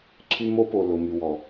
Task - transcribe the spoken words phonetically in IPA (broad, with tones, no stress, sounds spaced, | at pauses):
ǀʰ y˦ m o˦ p o˨ l ʊ˨ m y˨ w ɔ˨